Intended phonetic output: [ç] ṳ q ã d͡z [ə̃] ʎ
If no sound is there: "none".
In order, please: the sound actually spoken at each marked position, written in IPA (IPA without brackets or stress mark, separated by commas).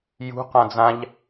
j, ã